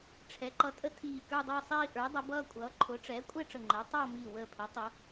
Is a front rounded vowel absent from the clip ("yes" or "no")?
yes